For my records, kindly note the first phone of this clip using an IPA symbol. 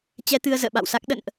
t͡ɕ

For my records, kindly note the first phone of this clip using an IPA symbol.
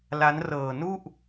l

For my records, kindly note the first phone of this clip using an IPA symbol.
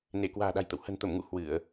n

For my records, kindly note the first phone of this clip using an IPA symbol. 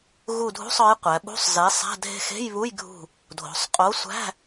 ɣ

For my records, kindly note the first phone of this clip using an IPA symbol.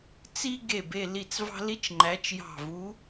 t͡s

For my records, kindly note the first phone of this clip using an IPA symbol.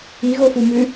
i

